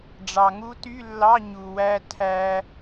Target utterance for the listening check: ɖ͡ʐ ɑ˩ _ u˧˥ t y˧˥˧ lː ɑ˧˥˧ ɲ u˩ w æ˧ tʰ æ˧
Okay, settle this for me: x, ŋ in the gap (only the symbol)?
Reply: ŋ